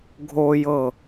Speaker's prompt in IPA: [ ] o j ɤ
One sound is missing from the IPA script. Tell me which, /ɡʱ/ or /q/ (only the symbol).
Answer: ɡʱ